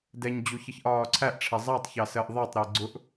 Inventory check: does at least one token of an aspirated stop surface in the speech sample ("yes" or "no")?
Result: yes